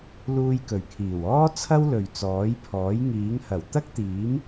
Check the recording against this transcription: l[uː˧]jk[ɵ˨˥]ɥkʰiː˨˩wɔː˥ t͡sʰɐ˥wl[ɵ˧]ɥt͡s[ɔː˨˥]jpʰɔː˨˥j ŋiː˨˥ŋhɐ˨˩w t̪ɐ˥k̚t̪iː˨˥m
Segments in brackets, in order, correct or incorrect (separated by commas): correct, incorrect, incorrect, correct